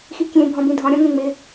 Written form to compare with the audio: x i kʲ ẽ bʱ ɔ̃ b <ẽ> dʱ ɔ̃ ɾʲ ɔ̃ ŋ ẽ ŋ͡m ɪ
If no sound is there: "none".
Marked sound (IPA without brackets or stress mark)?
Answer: ĩ